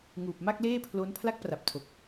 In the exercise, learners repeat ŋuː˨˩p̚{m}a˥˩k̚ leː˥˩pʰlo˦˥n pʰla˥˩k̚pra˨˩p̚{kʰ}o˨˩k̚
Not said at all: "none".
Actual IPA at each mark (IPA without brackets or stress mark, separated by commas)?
m, tʰ